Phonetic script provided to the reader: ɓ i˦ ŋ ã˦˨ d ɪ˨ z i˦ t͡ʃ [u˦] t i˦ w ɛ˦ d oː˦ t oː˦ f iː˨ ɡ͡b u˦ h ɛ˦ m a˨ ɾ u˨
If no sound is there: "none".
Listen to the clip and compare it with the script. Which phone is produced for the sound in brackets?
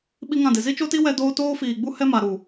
o˦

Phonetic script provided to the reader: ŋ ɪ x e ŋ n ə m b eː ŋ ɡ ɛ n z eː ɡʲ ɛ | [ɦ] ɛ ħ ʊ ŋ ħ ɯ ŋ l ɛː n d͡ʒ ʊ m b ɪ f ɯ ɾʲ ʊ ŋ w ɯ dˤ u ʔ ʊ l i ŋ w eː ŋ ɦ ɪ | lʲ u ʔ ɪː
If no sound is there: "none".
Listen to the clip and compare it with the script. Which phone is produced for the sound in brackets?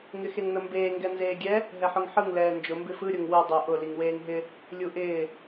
ɦ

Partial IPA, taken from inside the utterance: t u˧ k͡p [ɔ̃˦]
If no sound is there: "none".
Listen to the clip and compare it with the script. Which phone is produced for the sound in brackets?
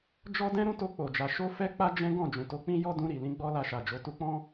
ɔ̃˦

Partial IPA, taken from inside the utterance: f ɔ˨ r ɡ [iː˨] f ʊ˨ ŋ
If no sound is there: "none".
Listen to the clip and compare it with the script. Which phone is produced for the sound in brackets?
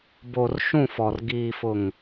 iː˨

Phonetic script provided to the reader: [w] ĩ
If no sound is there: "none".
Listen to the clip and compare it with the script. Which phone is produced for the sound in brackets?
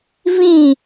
v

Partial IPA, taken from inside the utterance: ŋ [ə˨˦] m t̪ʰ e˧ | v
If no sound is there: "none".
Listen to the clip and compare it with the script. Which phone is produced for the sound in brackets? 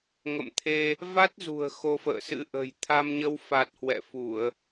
ə̰˧˨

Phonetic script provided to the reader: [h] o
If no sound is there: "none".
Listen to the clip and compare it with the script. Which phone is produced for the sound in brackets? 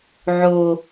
ʕ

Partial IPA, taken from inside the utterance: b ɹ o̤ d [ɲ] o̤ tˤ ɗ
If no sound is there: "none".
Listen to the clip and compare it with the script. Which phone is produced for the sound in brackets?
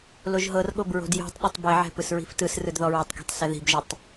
j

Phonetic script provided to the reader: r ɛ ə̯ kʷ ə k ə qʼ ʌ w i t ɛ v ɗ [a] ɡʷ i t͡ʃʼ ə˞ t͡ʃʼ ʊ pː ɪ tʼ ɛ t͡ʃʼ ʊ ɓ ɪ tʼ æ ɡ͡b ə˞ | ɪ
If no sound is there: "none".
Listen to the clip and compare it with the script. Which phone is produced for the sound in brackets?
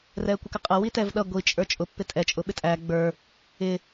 ʌ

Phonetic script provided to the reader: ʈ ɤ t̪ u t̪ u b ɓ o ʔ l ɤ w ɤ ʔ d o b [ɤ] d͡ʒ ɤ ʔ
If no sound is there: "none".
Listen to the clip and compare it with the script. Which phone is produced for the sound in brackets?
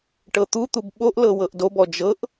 ɔ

